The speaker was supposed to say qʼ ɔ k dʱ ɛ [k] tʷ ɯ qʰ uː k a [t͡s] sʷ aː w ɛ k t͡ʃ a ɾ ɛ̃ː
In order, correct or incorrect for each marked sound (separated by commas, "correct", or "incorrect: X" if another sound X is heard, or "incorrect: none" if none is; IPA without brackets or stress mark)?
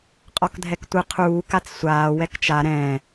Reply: correct, correct